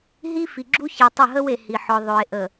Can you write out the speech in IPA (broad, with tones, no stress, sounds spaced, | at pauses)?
ɦ i˦ f i˨ ɡ͡ǁ u˦ ç e˨ tˤ ə˦˨ ɦ ə˦ w e˨ h i˨ ħ ɔ˨ ðˤ ɵ˨ e̯ ʔ ə˨